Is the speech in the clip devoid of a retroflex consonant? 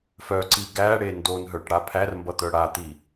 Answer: no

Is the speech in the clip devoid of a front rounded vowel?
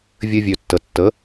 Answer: no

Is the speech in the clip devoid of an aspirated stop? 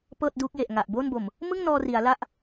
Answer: yes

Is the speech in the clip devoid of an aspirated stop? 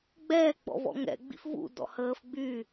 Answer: yes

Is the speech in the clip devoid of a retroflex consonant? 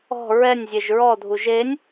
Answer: yes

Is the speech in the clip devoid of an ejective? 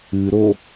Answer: yes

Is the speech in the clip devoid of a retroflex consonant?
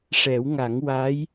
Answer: no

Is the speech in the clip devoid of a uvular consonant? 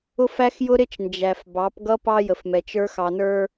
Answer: yes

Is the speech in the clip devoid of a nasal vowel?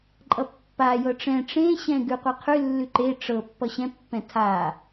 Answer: no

